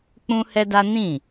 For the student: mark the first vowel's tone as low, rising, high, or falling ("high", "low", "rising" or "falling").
high